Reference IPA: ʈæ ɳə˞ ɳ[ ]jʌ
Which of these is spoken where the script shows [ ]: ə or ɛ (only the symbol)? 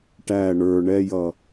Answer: ɛ